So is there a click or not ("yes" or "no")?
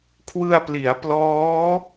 no